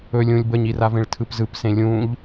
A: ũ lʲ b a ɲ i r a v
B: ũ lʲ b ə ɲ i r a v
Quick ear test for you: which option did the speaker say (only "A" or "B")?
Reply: B